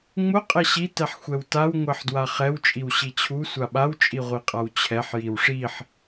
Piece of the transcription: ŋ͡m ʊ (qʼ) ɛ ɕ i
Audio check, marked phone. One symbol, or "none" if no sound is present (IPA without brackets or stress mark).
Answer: qʼ